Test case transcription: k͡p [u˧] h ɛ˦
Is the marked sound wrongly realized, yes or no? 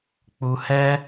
no